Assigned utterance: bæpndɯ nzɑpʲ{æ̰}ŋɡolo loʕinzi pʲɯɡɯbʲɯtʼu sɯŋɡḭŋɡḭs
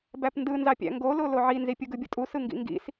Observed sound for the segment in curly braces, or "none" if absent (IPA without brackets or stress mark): æ̰